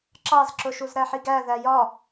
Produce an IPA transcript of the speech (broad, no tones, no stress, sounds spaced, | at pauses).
ǁ ɑ z ǁ ʊ ʃ u z ɾ æ ħ i ɡ æ ð æ j ɒ